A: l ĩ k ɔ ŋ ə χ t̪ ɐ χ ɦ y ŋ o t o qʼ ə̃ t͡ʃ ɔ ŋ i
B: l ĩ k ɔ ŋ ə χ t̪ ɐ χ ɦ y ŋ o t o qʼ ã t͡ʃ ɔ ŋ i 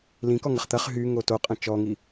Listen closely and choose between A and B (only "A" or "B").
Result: A